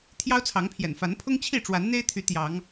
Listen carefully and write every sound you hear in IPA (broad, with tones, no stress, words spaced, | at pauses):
t̪ʰjɑ˦ʊ̯t͡sʰɑ˨˦ŋpʰjɛ̰˨˩n fa˨˦npʰʊ˦ŋt͡ɕʰi˥˨ ʈ͡ʂwa˨˦nn̪e˦ɪ̯t̪ʰy˨˦ t̪jɑ˨˦ŋ